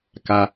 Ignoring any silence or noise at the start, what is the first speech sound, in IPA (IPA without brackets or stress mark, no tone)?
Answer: k